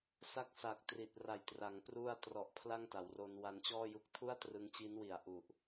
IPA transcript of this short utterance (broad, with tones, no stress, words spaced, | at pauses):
sa˦˥k̚sa˨˩k̚ tri˨˩t̚ra˨˩jtra˩˦ŋ pru˥˩a̯ trɔ˨˩ʔ pʰla˥˩ŋta˩˦wro˧n wa˧nt͡ɕɔː˥˩ju˦˥k̚ tʰu˥˩a̯trɯ˧ŋt͡ɕi˦˥nwi˨˩a̯ ʔu˨˩ʔ